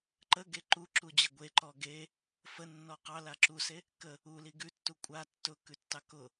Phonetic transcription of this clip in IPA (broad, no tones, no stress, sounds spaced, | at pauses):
ǃ ə ɡ e ǃ u ǁ u d͡ʑ ə ɡʷ e ǃ ɔ ɡ e | f ə nː ɔ q ɑ l a ǁ u s e | k ə | u l i ɡ ʉ tː u kʷʼ a tː ʊ k ʉ tː ɑ k ʊ